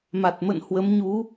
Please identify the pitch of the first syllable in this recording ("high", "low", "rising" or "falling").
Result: low